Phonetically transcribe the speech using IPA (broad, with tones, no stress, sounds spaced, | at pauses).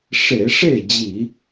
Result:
ʂ e˧˩˧ ʂ e˥˩ d͡ʑ i˧˩˧